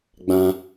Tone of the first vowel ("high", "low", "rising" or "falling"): high